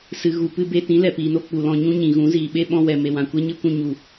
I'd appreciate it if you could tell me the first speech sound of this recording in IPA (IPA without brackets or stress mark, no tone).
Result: s